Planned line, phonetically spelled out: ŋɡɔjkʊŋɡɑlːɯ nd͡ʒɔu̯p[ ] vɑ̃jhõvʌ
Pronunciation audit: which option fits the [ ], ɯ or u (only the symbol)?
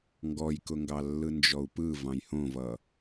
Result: ɯ